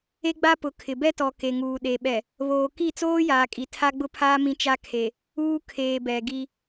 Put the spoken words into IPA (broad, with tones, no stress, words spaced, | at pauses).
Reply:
e˦ɡ͡ba˦pʊ˨˦kʰɪ˨ bɛ˦tɔ˨ ke˨ŋuː˨ɗe˨ ɓɛ˨ | βoː˨ki˦˨t͡soː˦jaː˨ kʼi˨tʰa˦ɡ͡bʊ˦pʰaː˦ mĩ˦t͡ʃa˦kʰe˨ | uː˦kʰeː˨ bɛ˨ ɡi˦